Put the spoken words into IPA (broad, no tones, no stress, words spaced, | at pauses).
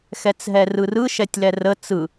xɛt͡sɦɛrɯrɯ ʃɛtʲlɛrə t͡sɯ